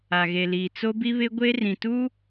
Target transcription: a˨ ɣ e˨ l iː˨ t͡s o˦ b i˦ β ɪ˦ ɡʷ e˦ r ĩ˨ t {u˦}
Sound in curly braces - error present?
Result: no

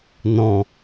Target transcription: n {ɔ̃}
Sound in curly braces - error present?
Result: no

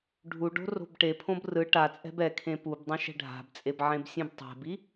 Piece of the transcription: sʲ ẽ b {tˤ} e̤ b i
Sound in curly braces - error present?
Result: no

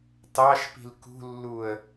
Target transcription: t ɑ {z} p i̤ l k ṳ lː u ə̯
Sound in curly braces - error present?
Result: yes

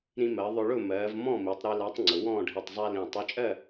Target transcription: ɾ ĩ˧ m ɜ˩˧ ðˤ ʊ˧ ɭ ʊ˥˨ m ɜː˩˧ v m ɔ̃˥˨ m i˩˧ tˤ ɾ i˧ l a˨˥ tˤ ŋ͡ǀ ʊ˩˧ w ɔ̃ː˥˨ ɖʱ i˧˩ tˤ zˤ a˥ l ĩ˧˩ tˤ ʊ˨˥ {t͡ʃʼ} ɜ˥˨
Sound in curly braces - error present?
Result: no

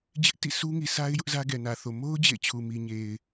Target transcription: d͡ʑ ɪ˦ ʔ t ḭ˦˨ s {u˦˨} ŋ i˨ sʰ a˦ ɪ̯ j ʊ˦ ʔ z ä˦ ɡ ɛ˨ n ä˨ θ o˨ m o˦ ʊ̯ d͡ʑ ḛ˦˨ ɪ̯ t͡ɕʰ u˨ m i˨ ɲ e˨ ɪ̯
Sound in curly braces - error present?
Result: yes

